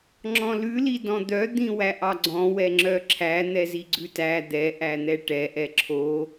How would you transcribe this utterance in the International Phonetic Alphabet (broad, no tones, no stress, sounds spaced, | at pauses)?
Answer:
ŋ͡ǁ ɔ̃ l ʉ l i d ɔ̃ d̪ œ d̪ ĩ w æ ʔ ɑ ɡ͡ǀ ɔ̃ w ɛ ŋ͡ǁ œ ǁʰ æ n̪ ɛ z i ɡ͡ǀ ʉ t æ d̪ ɛ ʔ æ n̪ ɛ ʈ ɛ ʔ ɛ ǁʰ o